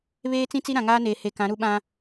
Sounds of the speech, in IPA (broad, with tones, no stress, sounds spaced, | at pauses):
β eː˦ t͡s ĩ˦ t͡s i˦ ɾ ã˨ ŋ aː˦ n eː˨ h e˨ k ã˨˦ ɾ u˦ ɓ ã˦